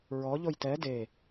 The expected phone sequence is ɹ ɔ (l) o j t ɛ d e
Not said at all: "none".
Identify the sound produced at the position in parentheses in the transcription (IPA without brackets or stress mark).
ʎ